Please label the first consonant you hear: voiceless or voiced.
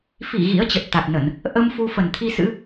voiceless